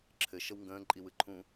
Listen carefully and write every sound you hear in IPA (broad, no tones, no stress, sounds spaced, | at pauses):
ǁʰ ɘ ʃ ə w ŋ ɡ ə̃ː ǃʼ i w ɯ ǃʰ ũ